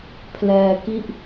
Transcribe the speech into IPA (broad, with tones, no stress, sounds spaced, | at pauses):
pʰ l ɛː˧ k i˥˩ ʔ